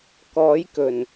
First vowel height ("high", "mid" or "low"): mid